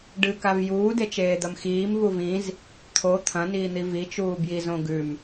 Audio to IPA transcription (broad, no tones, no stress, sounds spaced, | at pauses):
ɖ ɨ k a v j uː d e t͡ʃ eː d̪ ɐ m x iː m v u v ĩ z | t̪ʰ o t̪ʰ ɐ̃ n iː n̪ i v i t͡ʃ uː b j i z õ ɡ ʉ m